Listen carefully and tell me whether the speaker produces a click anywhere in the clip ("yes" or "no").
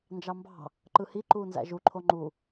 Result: yes